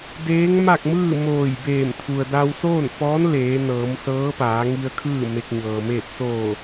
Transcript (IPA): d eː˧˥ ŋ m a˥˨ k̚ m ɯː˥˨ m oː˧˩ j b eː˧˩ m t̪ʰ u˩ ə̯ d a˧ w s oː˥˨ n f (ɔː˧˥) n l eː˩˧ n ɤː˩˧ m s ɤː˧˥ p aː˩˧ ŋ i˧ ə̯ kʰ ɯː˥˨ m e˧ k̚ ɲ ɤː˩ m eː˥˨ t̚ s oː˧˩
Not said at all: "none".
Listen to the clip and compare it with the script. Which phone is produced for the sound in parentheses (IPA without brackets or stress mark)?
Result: ɔː˧˥